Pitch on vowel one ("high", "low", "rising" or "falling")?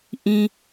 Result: high